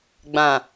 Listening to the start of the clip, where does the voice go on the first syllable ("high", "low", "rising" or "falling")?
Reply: low